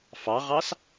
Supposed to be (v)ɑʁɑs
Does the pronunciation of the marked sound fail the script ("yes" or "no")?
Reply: yes